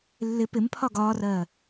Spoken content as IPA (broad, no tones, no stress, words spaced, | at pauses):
lːɪ pɪmpʰɒ ɡɒːrɜː